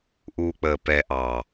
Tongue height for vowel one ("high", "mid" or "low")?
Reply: high